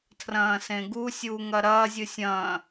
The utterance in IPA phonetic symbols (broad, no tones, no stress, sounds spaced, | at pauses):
tʰ r ɐ̃ː s ẽ ɡ u sʲ uː ŋ ɐ ɾ ɐː zʲ ɨ sʲ ɐ̃ː